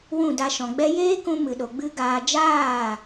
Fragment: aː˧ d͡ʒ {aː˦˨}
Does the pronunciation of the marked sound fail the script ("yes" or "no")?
no